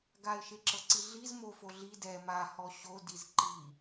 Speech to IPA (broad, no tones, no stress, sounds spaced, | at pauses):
ɡ a ɪ̯ ʃ e ǁ ɤ ǀ i ɮ i z m o f o ɮ i d ɛ m a h ɔ ɕ o d i z ǃ i